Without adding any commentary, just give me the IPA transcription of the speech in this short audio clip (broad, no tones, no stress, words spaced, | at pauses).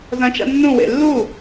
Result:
zɐ̃t͡ʃa̰ nːũwḛ lːu